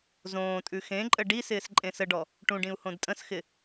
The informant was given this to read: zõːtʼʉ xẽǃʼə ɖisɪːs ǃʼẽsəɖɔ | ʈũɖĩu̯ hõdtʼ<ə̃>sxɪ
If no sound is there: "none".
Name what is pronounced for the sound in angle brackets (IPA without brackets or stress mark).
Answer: ə̃